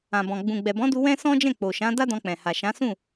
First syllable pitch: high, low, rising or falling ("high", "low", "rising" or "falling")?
low